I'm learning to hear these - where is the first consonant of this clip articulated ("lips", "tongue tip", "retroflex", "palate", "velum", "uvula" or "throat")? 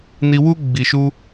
tongue tip